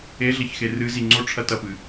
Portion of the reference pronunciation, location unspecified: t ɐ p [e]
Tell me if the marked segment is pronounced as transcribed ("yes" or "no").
no